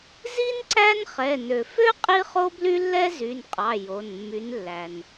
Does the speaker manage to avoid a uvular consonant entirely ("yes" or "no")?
no